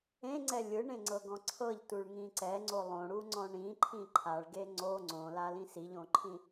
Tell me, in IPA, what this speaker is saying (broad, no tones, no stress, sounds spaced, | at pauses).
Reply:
ẽ ŋ͡ǀ ɛ lʲ ɯ ɳ ẽ ŋ͡ǀ ɤ ɡ ɔ̃ ǀʰ ɤ ʎ t u ɭ ŋ ĩ ǀ ɛ ŋ͡ǀ o lˠ õ ɽ u ŋ͡ǀ ɔ̃ ɳ ĩ ǃʰ ĩ ǃʰ a ɭ ɡ e ŋ͡ǀ o ŋ͡ǀ õ l a l ĩ s i ʎ õ ǃʰ ĩ